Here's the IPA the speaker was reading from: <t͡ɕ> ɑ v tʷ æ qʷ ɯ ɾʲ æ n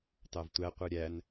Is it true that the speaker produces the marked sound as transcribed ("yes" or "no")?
no